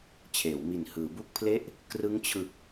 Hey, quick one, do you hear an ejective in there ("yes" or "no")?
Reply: no